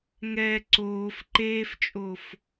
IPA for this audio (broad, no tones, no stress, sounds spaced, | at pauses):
ŋ ɛ ǀ oː f ǃ eː f t͡ʃʼ o f